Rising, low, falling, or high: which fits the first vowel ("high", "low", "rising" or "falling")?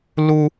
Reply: high